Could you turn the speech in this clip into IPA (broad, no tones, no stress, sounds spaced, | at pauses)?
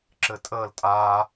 ǁ ɘ tʼ əː l tʼ aː